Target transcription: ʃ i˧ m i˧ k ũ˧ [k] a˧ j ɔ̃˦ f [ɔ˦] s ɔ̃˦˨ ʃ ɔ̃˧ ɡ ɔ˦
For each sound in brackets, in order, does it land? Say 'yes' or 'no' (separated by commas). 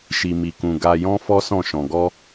no, yes